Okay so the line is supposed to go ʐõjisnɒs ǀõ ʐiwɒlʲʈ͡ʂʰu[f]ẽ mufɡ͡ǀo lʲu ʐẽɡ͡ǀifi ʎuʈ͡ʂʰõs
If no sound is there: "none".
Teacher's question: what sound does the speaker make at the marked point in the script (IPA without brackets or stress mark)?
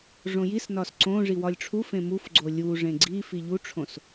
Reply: f